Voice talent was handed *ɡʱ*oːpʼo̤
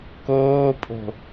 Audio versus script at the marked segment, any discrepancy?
yes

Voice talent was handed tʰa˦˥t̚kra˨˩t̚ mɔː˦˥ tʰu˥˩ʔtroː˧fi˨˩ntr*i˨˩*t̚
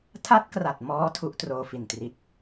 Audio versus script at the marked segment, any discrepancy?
no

